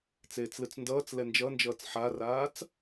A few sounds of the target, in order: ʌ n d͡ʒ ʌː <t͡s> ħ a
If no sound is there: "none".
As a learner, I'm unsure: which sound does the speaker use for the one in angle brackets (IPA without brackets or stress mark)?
t͡s